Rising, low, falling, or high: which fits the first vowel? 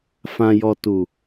low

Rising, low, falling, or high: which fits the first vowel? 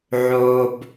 low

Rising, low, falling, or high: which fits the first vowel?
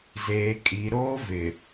low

